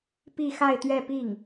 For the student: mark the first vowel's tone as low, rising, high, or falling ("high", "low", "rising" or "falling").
falling